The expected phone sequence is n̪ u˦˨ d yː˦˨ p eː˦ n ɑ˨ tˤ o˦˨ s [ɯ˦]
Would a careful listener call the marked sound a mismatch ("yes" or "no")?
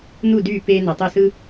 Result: no